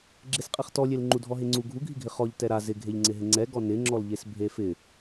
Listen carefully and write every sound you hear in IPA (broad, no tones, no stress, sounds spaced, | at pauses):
ɡ͡ǁ e s qʼ ɛ χ t ɔ lʲ e l ŋ͡ǃ u dʱ ɔ ɦ e ŋ͡ǀ u ɡʱ u ɡʱ i ɡʱ ɪ χ ɔ ʎ t ɛ ɾ a z ɪ ɡʱ e ʎ ŋ͡ǀ ɪ ɦ ɪ ŋ͡ǀ ɛ ɡ ɔ n ɪ ŋ͡ǁ ɔ l ʎ e s bʱ e f ɪ